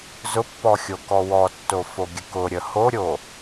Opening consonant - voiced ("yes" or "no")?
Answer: yes